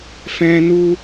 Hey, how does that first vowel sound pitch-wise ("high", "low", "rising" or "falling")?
high